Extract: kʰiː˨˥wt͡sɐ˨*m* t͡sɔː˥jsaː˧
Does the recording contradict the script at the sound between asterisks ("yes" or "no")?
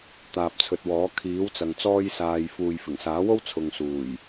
yes